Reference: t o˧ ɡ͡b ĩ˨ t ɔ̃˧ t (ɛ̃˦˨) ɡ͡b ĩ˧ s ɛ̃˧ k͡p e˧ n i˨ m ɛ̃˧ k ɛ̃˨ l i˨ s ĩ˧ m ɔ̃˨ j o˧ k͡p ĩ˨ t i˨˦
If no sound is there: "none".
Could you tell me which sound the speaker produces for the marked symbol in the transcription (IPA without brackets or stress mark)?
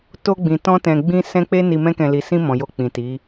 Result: ɛ̃˨